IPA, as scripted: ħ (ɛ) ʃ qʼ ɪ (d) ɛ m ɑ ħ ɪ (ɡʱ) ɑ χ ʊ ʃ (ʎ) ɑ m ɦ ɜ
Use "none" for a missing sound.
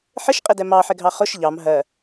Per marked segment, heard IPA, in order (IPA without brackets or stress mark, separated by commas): ɪ, d, ɡʱ, ʎ